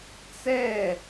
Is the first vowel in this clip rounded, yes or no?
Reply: no